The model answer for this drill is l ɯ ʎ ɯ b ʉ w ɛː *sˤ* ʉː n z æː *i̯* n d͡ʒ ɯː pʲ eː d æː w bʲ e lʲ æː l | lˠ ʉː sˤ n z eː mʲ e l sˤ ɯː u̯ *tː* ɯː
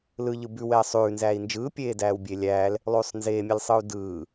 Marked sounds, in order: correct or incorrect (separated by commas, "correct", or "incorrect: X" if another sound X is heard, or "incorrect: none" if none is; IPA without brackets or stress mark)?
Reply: correct, correct, incorrect: d